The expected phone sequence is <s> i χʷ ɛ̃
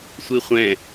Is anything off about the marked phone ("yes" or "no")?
yes